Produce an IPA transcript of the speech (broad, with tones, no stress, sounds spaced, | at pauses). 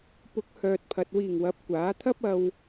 p ʊ˨˥ k̚ h œː˨ t̚ pʰ ɐ˨ t̚ w iː˨˩ ŋ w ɐ˨˥ p̚ kʷ aː˨˥ t̪ʰ ɐ˥ p̚ ɐ˧ w